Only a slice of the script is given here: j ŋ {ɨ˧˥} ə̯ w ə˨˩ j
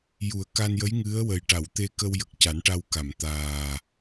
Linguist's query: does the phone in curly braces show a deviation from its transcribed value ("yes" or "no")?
no